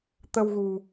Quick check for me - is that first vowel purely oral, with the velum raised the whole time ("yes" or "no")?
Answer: yes